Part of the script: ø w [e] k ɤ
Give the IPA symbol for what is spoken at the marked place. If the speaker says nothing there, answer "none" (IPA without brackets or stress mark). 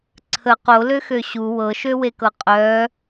e